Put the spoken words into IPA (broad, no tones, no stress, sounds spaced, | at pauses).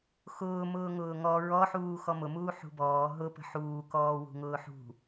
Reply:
x ʊː m ʊː ŋ ʊː ŋ ɔ ɹ ɔ ħ uː x ɔ m ʊ m uː ħ ṳ b ɔː ɦ ʊ p ə̤ ħ uː k ɔː w ṳ ŋ ʊː ħ ṳ